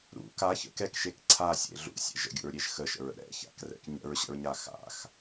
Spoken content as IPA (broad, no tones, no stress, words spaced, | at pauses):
ɾṵ kaçə̰ kɛkʃek ǀʰasʲḛ ɮṵsʲɛ̰ʒ ə̰ɡʲṵɹɾʲeʒ xəʃə̰ɹə̰ ɾɛ̰ça̰krɛ̰k ɲə̰ɹɕə̰ɹɲa xa̰x